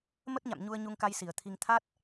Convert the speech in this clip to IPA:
m ə˦˥ t̚ ɲ a̰˧˨ m ɲ u˧ ə̯ ɲ u˧ ŋ k a˧ j s i˧˩ ə̯ t̪ʰ i˧ ŋ t̪ʰ a˦˥ t̚

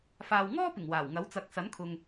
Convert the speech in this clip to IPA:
f aː˨ w ŋ ɔː˥ p ɪ˨˩ ŋ w aː˨˩ w ŋ ɐ˨˥ w t͡s ɐ˨˥ k̚ s ɐ˨˥ n kʰ ʊ˨ ŋ

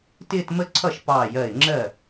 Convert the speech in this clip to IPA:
t ɪː˥˧ t m ə˥˧ ǀʰ ʌ˥˩ ʃ p ɑː˧˩ j ɜ˧˩ ɪ̯ ŋ͡ǁ ɜ˥˩

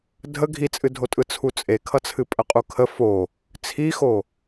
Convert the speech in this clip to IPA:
dʱ ə ɡʱ i t͡sʼ ɨ dʱ o tʼ ɯ t͡sʰ u t͡sʼ e kʰ ʌ t͡sʰ ɨ pʼ ə qʼ u kʰ ə f o | t͡sʰ i x o

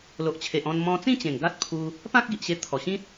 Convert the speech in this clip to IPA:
l o˨ ʔ t͡ɕʰ e˨ ʔ ɔ̃˧ n m ɔ̃˧ t͡s ĩ˥˧ t͡ɕ ẽ˨˩ ŋ ɡ a˦ t̚ pʰ u˧ | p ã˦ k̚ ɡ i˨ ʔ ɕ e˧ t̪ʰ ɔ˨˩ ɕ ĩ˦ t̚

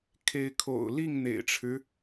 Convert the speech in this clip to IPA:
kʰ e˨˦ ɪ̯ kʰ o̰˨˩ ʊ̯ l i˥˨ ŋ n̪ ḛ˨˩ ɪ̯ ʈ͡ʂʰ ɻ̩˦

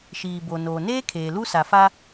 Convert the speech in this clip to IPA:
ʃ iː˨ b o˨ n oː˨ n eː˦ kʰ eː˨ l u˦ s a˨ f a˦

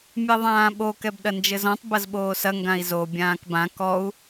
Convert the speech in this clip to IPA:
mʲ ɛ ðˤ ãː ɓ o k ɛ b ɗ ɐ n d͡ʒ ɘ z ɔ̃ tˤ b ɐ z ɓ oː s ɐ ŋ ɡ ã i̯ z o bʲ ãː k b ã k ɔ u̯

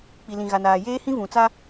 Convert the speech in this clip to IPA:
k͡p i˨ l ĩ˨ ɣ a˨ n aː˨ j eː˦ h ĩ˦ v ũ˨ t͡s a˦

